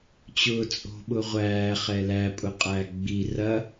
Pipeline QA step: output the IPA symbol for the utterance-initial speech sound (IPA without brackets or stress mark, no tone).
t͡ɕ